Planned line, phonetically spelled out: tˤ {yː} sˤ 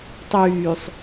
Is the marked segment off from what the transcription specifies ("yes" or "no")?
no